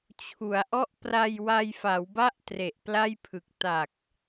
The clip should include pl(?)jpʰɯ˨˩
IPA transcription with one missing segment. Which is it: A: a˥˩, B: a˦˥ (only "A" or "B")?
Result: A